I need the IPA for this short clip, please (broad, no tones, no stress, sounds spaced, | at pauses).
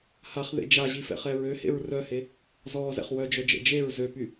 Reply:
h a χ ð ḛ d͡ʒ a ʑ i f ɛ̰ χ ɛ ɹ ø h ḛ ɹ r œ h e | z ɔː z ɛ̰ χ w œ d͡ʒ œ d͡ʒ ɛ̰ d͡ʒ e ɹ z ø p y